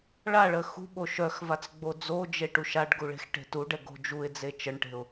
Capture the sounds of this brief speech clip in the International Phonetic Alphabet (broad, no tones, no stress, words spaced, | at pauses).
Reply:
ɭaɭə xṳɓo ʃœxvat͡sɡ͡bo d͡zod͡ʒeʈuʃ aɖɡuɭe̤xʈe̤ tuɖɛɡo̤ d͡ʒuɪ̯d͡ze t͡ʃəɳʈe̤ʊ̯